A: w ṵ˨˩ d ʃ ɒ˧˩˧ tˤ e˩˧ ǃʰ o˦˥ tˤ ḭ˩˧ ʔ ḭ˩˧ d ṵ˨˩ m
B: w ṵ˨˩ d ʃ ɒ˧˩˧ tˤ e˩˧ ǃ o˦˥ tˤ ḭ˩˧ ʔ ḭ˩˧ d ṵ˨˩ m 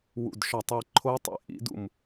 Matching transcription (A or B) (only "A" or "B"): A